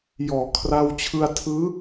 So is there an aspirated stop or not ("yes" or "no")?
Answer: yes